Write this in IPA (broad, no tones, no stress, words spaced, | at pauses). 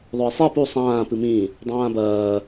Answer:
ðˤœɪ̯sˤi pu sˤãː pɨmĩ | dˤãːbɐː